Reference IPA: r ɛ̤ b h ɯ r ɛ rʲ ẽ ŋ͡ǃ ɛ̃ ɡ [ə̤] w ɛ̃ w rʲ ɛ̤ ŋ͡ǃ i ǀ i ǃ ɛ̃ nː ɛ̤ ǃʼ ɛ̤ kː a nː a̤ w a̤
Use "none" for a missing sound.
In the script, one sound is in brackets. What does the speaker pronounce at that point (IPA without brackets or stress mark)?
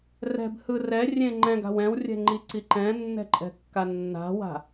a̤